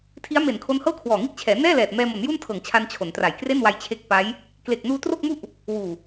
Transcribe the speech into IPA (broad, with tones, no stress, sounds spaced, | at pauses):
tʰ i˦˥ a̯ m e˨˩ n kʰ o˦˥ n h ɤː˥˩ kʰ w ɔː˨˩ ŋ i˥˩ t̚ t͡ɕʰ ɛː˩˦ n ɛː˥˩ l ɛː˨˩ t̚ m ɛː˧ m o˩˦ n j u˥˩ n tʰ ɤː˨˩ ŋ t͡ɕʰ a˧ n t͡ɕʰ o˩˦ n t r a˨˩ j k r e˥˩ n w a˧ j t͡ɕʰ e˦˥ k̚ p a˦˥ j | k l e˨˩ k̚ n uː˧ t r o˥˩ k̚ m u˥˩ ʔ | w uː˨˩